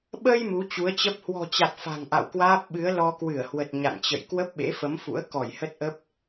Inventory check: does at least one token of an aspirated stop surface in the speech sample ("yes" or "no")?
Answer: no